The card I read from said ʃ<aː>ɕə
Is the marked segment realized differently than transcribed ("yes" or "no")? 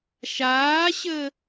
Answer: no